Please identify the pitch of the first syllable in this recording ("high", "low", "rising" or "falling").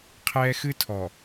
high